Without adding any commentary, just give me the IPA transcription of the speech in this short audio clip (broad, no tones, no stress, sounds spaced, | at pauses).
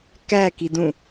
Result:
k æ k i d ũ